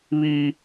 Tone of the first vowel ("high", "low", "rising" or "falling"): high